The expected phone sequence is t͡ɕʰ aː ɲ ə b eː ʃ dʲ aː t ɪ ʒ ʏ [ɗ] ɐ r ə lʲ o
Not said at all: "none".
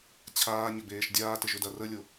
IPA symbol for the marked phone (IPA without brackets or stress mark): d